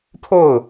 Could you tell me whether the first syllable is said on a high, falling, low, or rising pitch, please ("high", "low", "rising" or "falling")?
falling